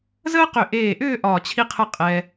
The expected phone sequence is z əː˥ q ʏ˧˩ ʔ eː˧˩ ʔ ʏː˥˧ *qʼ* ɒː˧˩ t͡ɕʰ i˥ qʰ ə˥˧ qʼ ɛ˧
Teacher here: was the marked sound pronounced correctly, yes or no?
no